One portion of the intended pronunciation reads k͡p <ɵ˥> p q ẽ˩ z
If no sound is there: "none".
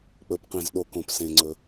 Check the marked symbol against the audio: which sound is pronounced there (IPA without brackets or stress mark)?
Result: ɵ˩